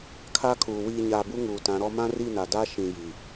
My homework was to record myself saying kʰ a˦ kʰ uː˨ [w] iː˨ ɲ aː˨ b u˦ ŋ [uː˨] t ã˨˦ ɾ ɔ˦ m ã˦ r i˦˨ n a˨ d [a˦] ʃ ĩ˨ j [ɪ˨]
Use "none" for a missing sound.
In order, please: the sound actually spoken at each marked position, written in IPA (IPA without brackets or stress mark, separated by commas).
w, uː˨, a˦, i˨